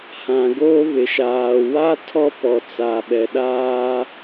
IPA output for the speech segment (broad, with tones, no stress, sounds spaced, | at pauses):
h ã˨ ɡ oː˦ β ɪ˨ ʃ aː˨ w a˦ tʰ ɔ˦ p ɔ˨ t͡s a˨ ɓ ɛ˨ ɗ aː˦